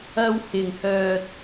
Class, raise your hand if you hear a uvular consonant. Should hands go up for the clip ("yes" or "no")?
no